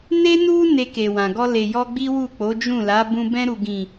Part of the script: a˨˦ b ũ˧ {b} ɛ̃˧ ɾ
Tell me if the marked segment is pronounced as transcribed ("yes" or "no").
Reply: yes